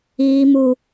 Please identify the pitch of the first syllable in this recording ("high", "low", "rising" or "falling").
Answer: high